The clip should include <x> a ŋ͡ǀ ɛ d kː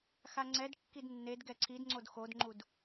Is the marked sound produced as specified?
yes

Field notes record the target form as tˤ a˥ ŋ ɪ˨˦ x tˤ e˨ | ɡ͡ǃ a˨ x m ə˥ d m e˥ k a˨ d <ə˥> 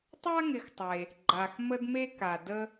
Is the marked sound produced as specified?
yes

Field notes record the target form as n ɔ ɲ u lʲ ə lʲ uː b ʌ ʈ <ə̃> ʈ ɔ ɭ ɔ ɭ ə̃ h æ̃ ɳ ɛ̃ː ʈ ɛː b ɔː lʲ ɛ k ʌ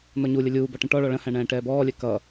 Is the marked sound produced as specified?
yes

